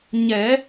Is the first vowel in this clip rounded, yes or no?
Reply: no